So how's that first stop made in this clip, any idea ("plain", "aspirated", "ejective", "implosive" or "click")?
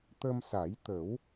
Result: plain